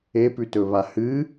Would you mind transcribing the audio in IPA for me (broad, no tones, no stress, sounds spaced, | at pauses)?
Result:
e p ʉ t ɵ β a h ɨ